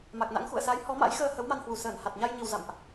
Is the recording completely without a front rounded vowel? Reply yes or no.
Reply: yes